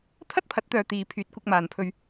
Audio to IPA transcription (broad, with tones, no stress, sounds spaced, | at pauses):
t̪ʰ ɐ˥ t̚ pʰ ɐ˨˥ t̚ t̪ œː˨ t̪ iː˨ pʰ yː˨˥ t̚ kʷ ɪ˧ k̚ m aː˨ n pʰ ɵ˧ ɥ